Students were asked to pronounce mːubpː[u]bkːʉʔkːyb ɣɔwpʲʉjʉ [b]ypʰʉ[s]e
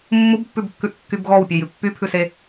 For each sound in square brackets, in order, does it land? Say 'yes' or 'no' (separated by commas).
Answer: no, no, yes